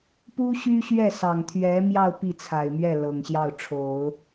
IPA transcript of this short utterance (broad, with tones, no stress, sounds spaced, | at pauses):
p u˥ ɕ y˥ ɕ ɥ ɛ˥˩ s ɑ˨˩ ŋ t̪ʰ ɥ ɛ˧˥ m j ɑ˥˧ ʊ̯ p i˥˩ t͡sʰ a˨˩ ɪ̯ m ɥ ɛ˥˩ l ɤ˨˩ ŋ ɕ j ɑ˥˩ ʊ̯ ʈ͡ʂʰ o˨˩˦ ʊ̯